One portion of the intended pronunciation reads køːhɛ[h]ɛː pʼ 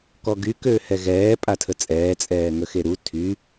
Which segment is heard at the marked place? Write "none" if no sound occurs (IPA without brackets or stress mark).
ɣ